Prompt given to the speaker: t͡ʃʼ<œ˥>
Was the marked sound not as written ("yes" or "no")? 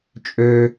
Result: yes